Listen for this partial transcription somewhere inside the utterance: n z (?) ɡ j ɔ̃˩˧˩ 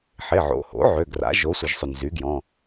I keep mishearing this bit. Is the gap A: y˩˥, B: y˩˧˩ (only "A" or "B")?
A